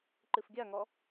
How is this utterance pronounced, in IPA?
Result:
ǃ ɨ f ɡʲ a ŋ ɔ

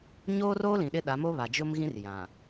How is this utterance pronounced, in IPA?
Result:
ɲ oː˦ r oː˦ l ĩ˨ ɗ ɪ˦ ɗ a˨˦ m o˦ β a˨ d͡ʒ ʊ˦ m ɣ ĩ˦ r j ã˨

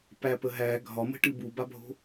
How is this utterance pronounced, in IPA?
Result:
p æ p ə ɦ æ ɡʱ ɒ m ə̤ ʈ ɨ b u b a bʱ o̤

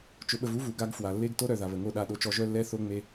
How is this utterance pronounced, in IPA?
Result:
t͡ʃ ʊ˨ ɓ ə˨ v u˦ v u˨ ɡ a˦ ɡ f w a˨ lː e˦ ɡ t o˦ ɾ œ˨ ð a˨ β ə˨ ŋ o˦˨ ɗ a˦˨ ɗ o˦ t͡ʃ ɔ˦ ʒ œ˦ lː ɛ˦ θ o˦ ŋ͡m e˦

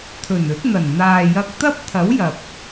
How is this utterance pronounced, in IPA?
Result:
t̪ʰ ɵ˨˩ n ɵ˨˥ t̚ n̪ ɐ˨˩ n n̪ aː˨ j ɐ˧ k̚ t̪ ɐ˥ p̚ t̪ʰ ɐ˨˥ w j ɐ˨ p̚

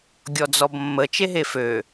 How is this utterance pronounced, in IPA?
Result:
ɡʲ ɔ d͡z ɔ b mː ə t͡ʃ e ɦ e f ø

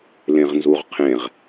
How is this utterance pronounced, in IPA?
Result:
l ẽ ʁ n z u ʁ qʰ ẽ ʁ

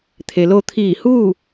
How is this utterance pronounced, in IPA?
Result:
t̪ʰ e˩ l o˧ t̪ʰ iː˧˩ h uː˥˨

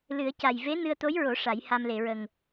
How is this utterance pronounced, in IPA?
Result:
l ɨ˨˩˦ ə̯ c a˨˩ j v e˧˥ n ɨ˧ ə̯ t̪ o˧˥ j ɹ o˨˩˦ ʂ a˨˩˦ j h a˧ m l e˨˩˨ ɹ ə˨˩ ŋ

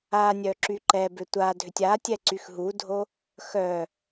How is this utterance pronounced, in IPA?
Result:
a nʲ œ ǁ y ǃ ɛ b ʏ tʷ a dʱ ʏ tʲ a tʲ ɛ ǀ y x ɦ u dʱ o | x œ

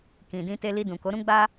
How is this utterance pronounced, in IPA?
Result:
k ĩ˨ d ĩ˧ t e˧ l i˧ d ũ˨ k o˨˦ ɾ ũ˦ ɡ͡b a˦

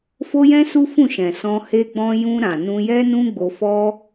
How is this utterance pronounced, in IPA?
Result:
f o˦ j ɛ̃˦ s u˦ f ũ˦˨ ʃ ɛ̃˨ s ɔ̃˧ h e˧ ɡ͡b ɔ̃˧ j ũ˧ ɾ ã˨ n ũ˧ j ɛ˦ n ũ˦ ɡ͡b o˧ f ɔ˦

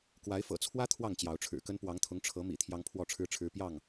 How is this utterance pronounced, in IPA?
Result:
k w a˨˦ ɪ̯ f ɤ̰˨˩ t͡sʰ w ä˦ t̪ʰ w ɑ˥˨ ŋ t͡ɕ j ɑ˨˦ ʊ̯ ʈ͡ʂʰ ɻ̩˨˩ k ə˦ n p w ɑ˨˦ ŋ t̪ʰ ʊ˨˦ ŋ ʈ͡ʂʰ ɤ˨˦ m ḭ˨˩ t̪ʰ j ɑ˦ ŋ pʰ w ɔ˥˨ ʈ͡ʂʰ ɻ̩˦ ʈ͡ʂʰ ɻ̩˦ p j ɑ˥˨ ŋ

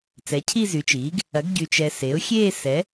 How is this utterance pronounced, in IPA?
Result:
t͡s ɛ˩˥ cʰ i˥˧ z y˩˥ t͡ʃ iː˩˥ ɡ | ɐ˩˥ ɡ ɟ y˨ t͡ʃ ɛ˨ s e˩˥ ʊ̯ xʲ eː˥˧ s ɛ˩˥

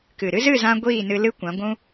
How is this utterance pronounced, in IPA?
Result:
k ɨ˨ ɾ ɨ˦ z ɨ˦˨ z ã˧ ɡʷ iː˦˨ n ɨ˧ l ɨ˦ kʷ ã˨˦ ɡʷ ũ˦

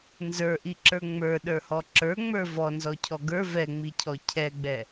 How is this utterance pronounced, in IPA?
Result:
n z ə˞ ʔ i ǁ ə˞ ŋ͡m ə˞ ɗ ə˞ h ɔ ǁ ə˞ ŋ͡m ə˞ v ɔ n z ɔ cʰ ɔ ɡ ə˞ v ɛ ŋ͡m i cʰ ɔ cʰ ɛ ɡ͡b ɛ

